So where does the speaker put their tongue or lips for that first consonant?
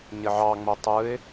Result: palate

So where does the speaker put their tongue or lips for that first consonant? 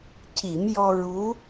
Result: palate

